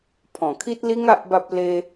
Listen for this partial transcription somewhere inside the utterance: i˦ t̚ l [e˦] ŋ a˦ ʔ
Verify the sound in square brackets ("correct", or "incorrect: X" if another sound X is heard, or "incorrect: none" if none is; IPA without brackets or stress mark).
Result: incorrect: i˦